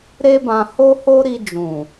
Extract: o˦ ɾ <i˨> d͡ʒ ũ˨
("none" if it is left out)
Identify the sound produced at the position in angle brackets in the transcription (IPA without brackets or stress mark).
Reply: i˧